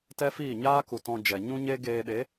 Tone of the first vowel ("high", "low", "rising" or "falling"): high